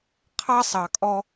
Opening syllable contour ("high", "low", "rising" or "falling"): high